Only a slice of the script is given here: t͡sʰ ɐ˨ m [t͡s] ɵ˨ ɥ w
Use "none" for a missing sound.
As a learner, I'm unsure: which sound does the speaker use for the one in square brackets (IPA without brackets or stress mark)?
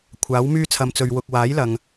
t͡s